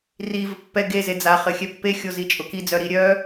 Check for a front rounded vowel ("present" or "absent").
present